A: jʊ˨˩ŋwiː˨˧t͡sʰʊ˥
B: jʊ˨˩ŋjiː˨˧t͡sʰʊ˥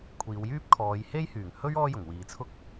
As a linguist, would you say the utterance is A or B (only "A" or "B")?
A